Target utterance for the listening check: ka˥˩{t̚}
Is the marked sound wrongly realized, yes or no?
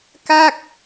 yes